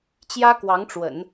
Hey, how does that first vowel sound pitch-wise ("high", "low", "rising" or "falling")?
high